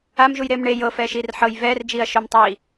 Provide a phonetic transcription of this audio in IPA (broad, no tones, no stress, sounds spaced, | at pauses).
a m ʒ u j ɾ eː m ɳ e j ɤ f ɛː ʃ iː r ħ ɤ j v ɛː r d͡ʒ iː ɐ̯ ʃ o m tˤ iː